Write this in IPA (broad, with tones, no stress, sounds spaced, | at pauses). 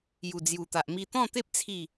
j u˨˩ d͡z j u˨˩ t̪ a˨ ʔ m i˧ t̪ ɔ̃˥˧ t̪ e˦ p̚ t͡sʰ i˥˧